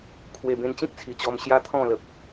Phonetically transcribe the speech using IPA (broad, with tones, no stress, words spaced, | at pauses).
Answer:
kʰwe˨˩bẽ˧nt͡ɕĩ˦k̚ t͡sʰi˨˩t͡ɕɔ˧m ɕja˦t̪ʰɔ̃˥˧lə˨p̚